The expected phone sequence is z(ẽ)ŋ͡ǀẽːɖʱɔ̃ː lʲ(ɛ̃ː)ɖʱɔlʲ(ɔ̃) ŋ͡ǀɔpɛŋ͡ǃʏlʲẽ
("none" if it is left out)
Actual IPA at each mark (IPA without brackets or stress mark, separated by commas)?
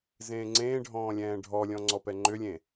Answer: ẽː, ɛ̃ː, ɔ̃